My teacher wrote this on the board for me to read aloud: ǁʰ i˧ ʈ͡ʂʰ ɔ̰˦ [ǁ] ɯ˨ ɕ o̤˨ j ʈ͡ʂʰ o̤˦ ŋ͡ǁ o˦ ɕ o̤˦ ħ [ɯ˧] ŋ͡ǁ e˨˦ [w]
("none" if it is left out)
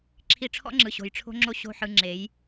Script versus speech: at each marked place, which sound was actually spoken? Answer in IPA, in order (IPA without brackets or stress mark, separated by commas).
ŋ͡ǁ, ɯ˧, j